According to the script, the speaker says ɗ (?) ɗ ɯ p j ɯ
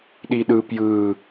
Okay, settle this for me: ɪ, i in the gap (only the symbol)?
i